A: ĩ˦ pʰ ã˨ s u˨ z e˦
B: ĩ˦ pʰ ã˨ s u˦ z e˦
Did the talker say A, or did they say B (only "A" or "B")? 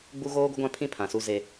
B